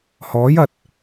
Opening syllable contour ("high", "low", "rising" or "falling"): rising